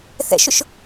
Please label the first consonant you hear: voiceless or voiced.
voiceless